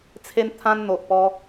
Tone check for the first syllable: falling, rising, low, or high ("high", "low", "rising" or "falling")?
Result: high